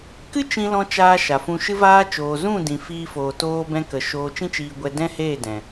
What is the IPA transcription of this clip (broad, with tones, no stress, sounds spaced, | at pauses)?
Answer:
k ɨ˦ t͡ʃ ĩ˧ l ɔ̃˧ t͡ʃ aː˧ ʃ a˨ f ũ˧ ʃ ɨ˦ v aː˦ t͡ʃ oː˨ z ũ˦˨ d ĩ˨ f iː˦ f oː˧ t oː˦ b ɛ̃˦ k ə˨ ʃ oː˧ t͡ʃ ĩ˦ t͡ʃ iː˧ ɡʷ ɛ˧ d ɛ̃˦ h eː˦˨ d ɛ̃˨